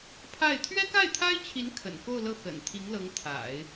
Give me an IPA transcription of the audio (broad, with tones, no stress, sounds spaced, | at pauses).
pʰ a˥˩ ɪ̯ t̪ʰ ɥ ɛ˥ k a˥˩ ɪ̯ t̪ʰ a˥ ɪ̯ t͡ɕʰ i˧˥ n kʰ ə̰˨˩ n k o˥˧ ʊ̯ l ɤ˥˩ x ə̰˨˩ n t̪ʰ i˧˥ ŋ l ɤ˧˥ ŋ t̪ʰ a̰˨˩˦ ɪ̯